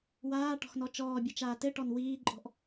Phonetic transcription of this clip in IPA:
waːʈɔ̤xnɔ t͡ʃɔːbʲɘt͡ʃaː tɘʈɔn wiːǃʼɔ̤ʔ

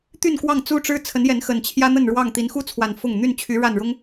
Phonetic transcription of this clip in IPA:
t̪y˥˨nkwɑ˥˨ŋ t͡su˦ʈ͡ʂɻ̩˦ t͡sʰə˨˦njɛ˨˦nxə˨˩n t͡ɕʰjä˦n̪ə˥˨nɻwɑ˥˨ŋ t̪i˨˦nxu˦t͡sʰwa˨˩n fʊ˥˨ŋ n̪y˥˨nt͡ɕʰy˨˦ ɻa˥˨nɻʊ˦ŋ

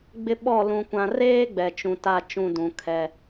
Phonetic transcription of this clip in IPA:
ɡ͡bɪ˦ ɓɔ˦˨ lũ˨kʷã˨reː˦ ɡ͡bɛ˨t͡ʃũ˨ta˦˨ t͡ʃũ˦˨dũ˨kʰɛ˦

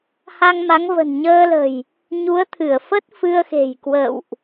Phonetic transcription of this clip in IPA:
ha˧ŋma˨˦ŋ və̤˨˩nɲəː˧lə̤˨˩j | ɲu˨˦ə̯t̪ʰɨ˧˩ə̯fə˦˥t̚ fɨ˧ə̯xe̤˨˩j kwə̰˧˨wʔ

